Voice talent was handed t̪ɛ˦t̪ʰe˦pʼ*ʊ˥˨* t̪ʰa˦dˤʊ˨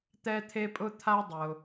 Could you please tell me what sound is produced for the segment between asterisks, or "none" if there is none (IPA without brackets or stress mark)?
ʊ˦